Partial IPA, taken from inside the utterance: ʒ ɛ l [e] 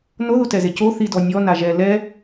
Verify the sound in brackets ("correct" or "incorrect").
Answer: incorrect